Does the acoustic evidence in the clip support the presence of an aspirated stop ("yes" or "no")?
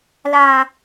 no